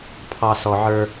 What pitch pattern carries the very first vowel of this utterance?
low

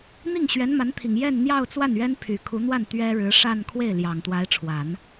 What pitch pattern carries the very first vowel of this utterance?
falling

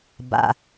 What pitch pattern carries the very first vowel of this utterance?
low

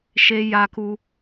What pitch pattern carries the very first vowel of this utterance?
high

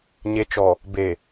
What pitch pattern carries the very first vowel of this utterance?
low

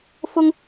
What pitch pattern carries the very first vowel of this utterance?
high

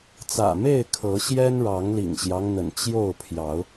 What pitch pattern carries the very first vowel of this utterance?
low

